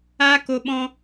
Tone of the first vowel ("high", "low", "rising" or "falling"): high